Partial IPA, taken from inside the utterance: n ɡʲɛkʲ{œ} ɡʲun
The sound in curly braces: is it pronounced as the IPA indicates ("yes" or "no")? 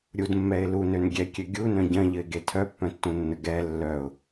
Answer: no